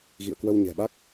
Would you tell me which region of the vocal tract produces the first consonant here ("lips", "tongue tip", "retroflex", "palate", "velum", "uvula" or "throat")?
velum